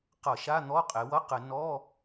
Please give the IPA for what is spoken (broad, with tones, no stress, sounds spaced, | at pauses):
q ʌ˧˩˧ ʃ a˧˥˧ n̪ ɔ˧˥˧ qʼ e˩˧ w ʌ˧˥˧ q ɘ˧˩˧ n ɔ˧˥˧